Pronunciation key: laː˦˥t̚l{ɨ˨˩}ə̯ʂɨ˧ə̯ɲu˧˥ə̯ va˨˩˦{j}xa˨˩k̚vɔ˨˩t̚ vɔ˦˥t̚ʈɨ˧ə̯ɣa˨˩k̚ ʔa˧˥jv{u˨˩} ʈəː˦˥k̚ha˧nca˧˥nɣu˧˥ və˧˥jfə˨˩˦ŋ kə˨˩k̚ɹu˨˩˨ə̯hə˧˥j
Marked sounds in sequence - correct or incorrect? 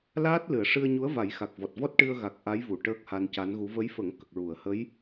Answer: correct, correct, correct

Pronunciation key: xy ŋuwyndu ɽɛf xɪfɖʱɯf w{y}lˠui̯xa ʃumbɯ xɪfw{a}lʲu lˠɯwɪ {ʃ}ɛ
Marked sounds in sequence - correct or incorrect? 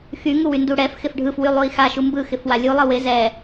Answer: correct, correct, incorrect

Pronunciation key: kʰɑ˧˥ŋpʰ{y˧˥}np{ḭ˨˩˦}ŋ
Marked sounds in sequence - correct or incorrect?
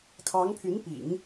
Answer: correct, correct

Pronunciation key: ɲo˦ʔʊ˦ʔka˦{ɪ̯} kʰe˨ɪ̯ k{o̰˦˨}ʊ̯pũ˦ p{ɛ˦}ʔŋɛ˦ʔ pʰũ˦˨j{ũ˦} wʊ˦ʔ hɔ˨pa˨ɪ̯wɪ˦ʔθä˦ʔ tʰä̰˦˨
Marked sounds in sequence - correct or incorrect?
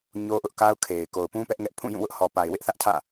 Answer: incorrect, incorrect, correct, incorrect

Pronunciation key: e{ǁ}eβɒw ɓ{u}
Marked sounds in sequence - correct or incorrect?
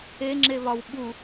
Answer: incorrect, correct

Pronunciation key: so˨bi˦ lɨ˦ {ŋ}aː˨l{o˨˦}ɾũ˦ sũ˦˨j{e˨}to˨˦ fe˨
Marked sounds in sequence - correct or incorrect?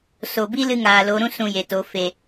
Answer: correct, correct, correct

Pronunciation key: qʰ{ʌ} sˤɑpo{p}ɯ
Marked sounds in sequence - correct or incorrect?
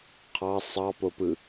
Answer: incorrect, correct

